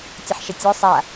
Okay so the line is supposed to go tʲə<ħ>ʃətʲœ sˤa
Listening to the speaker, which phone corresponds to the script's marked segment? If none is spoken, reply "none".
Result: ħ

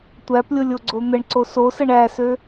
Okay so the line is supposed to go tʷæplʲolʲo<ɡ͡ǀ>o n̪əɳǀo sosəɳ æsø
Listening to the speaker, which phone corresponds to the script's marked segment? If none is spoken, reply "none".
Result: ɡ͡ǀ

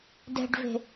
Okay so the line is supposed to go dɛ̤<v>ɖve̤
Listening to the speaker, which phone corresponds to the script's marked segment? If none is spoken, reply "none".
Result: none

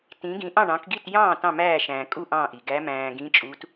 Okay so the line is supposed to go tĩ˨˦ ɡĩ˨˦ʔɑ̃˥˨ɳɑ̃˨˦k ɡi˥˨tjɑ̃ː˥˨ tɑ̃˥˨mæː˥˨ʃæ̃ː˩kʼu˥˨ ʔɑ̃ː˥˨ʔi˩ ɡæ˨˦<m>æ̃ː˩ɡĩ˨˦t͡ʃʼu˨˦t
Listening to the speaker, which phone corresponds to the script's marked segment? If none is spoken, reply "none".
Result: m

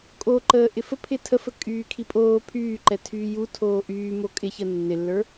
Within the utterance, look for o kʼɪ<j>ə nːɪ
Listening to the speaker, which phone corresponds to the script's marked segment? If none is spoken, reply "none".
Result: ç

